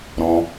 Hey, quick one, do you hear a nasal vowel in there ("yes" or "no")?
yes